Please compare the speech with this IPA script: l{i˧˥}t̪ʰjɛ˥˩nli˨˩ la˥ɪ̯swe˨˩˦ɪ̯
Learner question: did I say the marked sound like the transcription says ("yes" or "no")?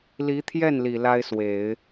yes